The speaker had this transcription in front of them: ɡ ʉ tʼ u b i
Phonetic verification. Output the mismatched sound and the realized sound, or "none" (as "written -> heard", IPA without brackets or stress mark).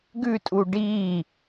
b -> ɖ